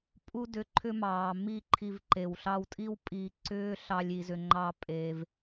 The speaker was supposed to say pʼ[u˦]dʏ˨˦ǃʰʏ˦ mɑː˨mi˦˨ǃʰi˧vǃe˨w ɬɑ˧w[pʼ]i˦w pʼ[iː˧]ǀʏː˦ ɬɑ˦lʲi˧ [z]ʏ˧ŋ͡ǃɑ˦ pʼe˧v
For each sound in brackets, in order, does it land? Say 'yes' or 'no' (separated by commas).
yes, no, yes, yes